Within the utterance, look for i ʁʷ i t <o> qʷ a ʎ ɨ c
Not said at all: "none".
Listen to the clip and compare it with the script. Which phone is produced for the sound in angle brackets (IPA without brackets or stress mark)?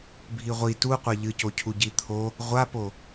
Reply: u